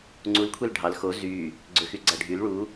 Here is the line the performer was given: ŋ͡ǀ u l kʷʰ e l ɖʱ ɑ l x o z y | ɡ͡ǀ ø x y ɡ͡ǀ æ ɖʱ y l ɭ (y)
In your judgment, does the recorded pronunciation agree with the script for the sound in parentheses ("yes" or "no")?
no